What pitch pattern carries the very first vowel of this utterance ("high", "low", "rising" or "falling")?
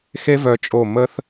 high